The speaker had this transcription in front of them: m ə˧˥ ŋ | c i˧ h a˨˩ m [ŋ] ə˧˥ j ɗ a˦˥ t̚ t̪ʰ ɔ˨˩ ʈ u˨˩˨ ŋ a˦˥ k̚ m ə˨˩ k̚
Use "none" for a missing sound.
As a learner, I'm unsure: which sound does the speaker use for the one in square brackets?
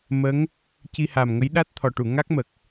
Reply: ŋ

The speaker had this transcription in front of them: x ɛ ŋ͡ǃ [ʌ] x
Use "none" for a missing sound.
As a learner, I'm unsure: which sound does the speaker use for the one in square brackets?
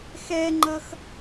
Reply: ʌ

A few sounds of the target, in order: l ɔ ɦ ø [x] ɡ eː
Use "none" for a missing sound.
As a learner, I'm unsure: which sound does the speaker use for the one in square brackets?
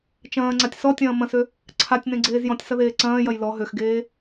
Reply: x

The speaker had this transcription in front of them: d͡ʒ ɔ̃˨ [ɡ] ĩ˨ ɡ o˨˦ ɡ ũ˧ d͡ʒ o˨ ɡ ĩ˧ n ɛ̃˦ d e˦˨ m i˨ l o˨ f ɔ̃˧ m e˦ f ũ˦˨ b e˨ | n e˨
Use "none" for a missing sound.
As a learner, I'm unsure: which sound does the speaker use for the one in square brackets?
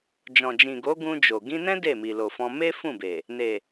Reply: d͡ʒ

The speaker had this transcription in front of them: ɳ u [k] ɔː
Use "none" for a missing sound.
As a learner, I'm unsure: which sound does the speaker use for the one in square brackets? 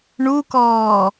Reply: k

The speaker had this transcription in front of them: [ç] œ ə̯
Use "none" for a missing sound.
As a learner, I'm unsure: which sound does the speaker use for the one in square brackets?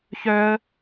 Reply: ç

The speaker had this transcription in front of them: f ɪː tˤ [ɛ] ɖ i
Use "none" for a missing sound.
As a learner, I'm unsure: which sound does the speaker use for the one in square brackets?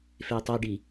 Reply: ɛ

